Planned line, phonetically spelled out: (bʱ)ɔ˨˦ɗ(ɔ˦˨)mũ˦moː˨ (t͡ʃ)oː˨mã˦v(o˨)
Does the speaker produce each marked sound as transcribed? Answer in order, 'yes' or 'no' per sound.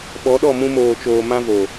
no, yes, yes, yes

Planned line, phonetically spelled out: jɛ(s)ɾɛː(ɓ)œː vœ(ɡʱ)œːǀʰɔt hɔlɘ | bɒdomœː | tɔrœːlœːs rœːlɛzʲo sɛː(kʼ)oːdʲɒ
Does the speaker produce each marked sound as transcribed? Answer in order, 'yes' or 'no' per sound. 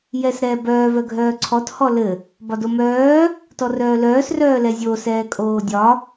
yes, no, yes, yes

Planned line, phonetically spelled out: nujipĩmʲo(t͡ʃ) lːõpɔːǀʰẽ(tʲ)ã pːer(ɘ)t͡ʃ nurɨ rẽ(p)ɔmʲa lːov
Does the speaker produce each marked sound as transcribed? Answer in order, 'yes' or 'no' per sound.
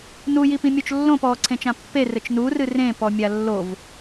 yes, no, yes, yes

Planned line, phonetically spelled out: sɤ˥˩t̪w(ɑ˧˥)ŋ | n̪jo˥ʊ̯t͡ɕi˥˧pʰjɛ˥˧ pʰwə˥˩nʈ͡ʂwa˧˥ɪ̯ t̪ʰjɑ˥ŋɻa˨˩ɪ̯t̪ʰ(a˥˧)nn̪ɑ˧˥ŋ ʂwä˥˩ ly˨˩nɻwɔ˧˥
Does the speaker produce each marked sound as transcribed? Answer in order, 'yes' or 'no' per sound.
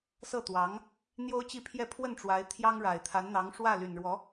yes, no

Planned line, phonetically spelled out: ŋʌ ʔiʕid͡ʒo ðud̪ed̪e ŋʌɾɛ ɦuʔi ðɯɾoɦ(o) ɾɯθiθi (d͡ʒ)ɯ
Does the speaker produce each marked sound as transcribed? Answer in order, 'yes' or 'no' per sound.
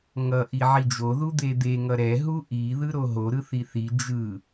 yes, yes

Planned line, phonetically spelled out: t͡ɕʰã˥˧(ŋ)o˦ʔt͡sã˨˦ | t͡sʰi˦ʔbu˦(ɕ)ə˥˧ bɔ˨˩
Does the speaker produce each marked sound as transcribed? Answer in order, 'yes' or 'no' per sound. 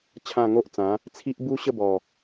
yes, yes

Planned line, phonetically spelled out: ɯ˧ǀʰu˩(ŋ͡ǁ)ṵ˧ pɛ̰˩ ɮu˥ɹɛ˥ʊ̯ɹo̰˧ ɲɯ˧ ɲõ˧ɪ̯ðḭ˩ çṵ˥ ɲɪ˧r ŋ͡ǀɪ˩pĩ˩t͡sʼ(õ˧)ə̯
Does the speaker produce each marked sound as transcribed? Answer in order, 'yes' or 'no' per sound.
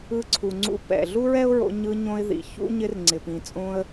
no, yes

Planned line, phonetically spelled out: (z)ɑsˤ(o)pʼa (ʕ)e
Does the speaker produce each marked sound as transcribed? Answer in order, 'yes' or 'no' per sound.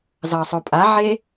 yes, yes, yes

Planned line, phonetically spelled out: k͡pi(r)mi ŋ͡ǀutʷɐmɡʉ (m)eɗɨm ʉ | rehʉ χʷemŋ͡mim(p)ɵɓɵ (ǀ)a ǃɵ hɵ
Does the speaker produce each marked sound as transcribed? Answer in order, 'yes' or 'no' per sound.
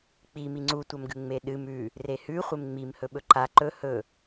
no, no, no, no

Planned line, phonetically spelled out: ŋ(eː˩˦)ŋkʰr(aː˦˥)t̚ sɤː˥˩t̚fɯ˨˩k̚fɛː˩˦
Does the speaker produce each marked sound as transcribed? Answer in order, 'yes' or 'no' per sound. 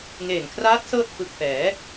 no, yes

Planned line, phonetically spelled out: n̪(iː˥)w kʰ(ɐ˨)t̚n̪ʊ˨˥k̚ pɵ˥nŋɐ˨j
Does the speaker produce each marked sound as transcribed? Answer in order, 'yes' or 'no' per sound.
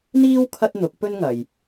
yes, no

